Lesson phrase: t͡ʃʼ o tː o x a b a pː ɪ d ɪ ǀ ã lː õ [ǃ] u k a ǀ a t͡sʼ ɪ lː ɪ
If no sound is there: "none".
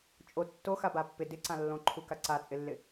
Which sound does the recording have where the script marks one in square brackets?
ǃʰ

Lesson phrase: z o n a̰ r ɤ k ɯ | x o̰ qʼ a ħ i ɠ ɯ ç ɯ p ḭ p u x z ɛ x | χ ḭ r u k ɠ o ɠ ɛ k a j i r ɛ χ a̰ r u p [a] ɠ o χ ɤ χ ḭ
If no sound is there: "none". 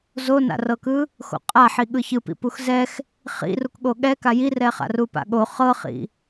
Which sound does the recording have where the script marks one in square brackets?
a̰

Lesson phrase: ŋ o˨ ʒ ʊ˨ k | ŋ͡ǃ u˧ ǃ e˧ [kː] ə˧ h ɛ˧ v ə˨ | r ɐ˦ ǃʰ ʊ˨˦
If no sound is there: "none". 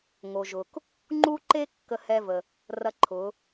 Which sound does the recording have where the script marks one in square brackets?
kː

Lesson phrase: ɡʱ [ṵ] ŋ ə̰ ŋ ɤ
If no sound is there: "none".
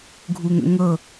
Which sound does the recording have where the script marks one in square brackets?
u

